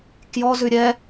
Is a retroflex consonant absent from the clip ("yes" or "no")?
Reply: yes